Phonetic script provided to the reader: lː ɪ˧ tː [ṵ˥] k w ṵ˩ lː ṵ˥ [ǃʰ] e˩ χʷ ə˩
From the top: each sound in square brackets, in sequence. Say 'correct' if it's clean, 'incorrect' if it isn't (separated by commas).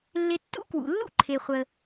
correct, correct